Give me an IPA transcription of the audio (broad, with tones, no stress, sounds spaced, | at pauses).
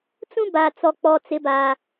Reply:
t͡s ũ˦ b a˨ t͡s ɔ˨ k͡p ɔ˨ t͡s ɪ˨˦ b aː˨